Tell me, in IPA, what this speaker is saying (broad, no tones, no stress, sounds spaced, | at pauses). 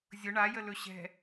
zʲ ʊ ɳ a j ə l ɵ ɕ ɛ̤